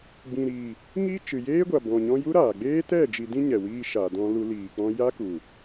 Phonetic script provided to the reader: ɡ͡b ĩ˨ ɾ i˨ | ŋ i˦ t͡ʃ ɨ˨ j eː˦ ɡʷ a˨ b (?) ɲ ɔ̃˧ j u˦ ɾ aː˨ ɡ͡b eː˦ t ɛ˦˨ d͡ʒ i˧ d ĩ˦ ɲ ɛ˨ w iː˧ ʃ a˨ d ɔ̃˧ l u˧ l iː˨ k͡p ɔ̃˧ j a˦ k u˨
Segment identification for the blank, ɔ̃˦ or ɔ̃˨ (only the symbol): ɔ̃˨